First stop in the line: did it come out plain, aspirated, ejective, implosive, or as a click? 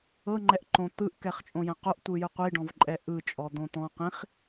click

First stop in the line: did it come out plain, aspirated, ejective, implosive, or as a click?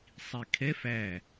aspirated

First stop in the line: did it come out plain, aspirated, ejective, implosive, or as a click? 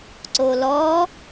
click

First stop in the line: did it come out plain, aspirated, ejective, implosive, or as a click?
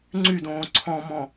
click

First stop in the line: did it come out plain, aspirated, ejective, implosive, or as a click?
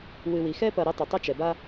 plain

